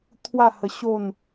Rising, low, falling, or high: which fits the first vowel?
falling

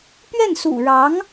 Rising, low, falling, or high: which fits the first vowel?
falling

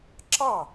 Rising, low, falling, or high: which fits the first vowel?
falling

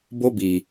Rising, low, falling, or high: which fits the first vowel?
high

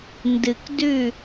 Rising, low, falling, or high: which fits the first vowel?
low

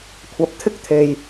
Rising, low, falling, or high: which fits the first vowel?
rising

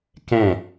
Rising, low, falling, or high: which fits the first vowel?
falling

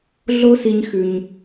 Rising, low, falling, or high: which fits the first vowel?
high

